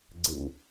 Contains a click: yes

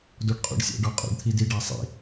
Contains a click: no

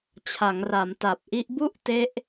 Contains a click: no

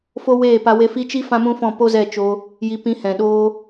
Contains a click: no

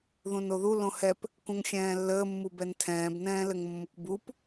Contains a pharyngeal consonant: no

